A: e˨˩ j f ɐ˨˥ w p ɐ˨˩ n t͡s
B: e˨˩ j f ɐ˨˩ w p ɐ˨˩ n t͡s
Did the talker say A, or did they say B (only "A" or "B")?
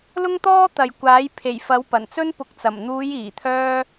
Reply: A